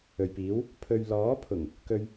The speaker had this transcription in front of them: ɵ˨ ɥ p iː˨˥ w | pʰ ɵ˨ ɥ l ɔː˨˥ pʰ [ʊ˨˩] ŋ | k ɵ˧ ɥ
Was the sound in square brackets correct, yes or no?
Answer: yes